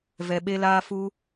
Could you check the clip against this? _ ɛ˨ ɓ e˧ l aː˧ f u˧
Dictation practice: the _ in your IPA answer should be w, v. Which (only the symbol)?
v